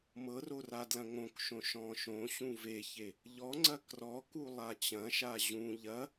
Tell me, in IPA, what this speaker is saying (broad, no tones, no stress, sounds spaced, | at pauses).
m ɤ r o r a d l ɐ̃ ŋ õ k ʃ õ ʃ ɔ̃ ʃ õ ɕ ũ v e ç e | ʎ ɔ ŋ͡ǀ ɐ k r ɔ k u lˠ a t͡ɕ ɐ̃ ʃ a ʑ ũ ʎ ɐ